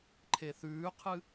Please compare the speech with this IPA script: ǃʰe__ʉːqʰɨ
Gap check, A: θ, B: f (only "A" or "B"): A